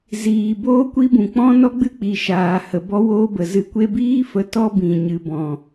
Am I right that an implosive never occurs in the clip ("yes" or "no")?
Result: yes